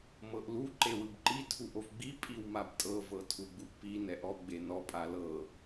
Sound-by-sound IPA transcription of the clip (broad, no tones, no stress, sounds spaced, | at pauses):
m ɤ ʔ l u ǃ e w ɯ b ǃ i tʰ u ʔ o v ɡ͡b i pʼ i w m a b tʼ ɤ v ɤ tʰ u ɡ͡b u ʔ p i n ɛ ʔ ɔ ɡ͡b e n ɔ pʼ a l ɤ